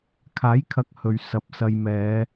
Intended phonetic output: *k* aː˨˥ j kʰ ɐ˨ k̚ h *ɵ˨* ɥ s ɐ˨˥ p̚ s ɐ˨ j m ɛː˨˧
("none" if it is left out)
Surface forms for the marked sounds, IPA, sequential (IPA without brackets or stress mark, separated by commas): kʰ, ɵ˨